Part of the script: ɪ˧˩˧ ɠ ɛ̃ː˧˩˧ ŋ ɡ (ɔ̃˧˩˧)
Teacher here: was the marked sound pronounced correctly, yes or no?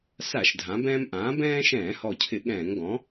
no